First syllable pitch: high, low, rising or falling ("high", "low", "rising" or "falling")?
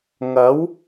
rising